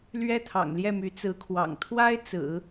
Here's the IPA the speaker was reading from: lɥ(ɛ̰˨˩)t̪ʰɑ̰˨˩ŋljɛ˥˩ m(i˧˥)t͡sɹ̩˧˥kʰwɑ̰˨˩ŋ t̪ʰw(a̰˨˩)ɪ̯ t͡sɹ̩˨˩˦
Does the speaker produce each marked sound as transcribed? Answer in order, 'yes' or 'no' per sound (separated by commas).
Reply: no, no, no